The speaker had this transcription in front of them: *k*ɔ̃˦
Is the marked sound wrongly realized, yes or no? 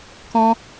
no